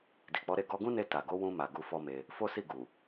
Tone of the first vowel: low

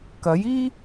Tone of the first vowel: rising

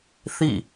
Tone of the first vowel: falling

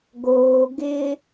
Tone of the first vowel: low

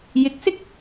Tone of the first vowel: rising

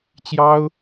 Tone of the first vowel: high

